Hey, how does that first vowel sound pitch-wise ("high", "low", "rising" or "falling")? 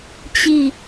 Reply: falling